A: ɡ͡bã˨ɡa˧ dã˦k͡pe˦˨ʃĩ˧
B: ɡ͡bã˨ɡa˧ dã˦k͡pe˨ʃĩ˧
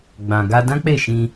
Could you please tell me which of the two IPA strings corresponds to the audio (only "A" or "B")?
A